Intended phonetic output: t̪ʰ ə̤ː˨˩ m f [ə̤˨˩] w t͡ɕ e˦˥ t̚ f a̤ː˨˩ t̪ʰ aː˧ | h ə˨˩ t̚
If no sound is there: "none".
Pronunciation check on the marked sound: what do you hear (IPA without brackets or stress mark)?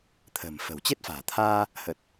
ə̤˨˩